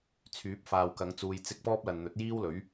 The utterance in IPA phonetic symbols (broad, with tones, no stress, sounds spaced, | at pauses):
t͡sʰ yː˨˥ p̚ f aː˨ w k ɐ˨˧ ŋ t͡s uː˨ j t͡s ɪ˧ k̚ p ɔː˥ p̚ l ɐ˨ n n̪ ɵ˨˥ t̚ j iː˥ w l ɵ˨˥ ɥ